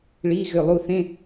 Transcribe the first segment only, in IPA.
ɭ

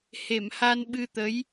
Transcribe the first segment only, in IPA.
h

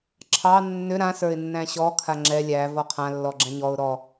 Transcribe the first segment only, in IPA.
ǁʰ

